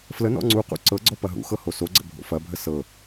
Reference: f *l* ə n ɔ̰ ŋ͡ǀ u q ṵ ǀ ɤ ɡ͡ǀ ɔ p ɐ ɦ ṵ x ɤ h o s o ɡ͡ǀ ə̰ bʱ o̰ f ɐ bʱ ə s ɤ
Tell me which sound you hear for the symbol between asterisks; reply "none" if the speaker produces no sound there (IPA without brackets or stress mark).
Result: l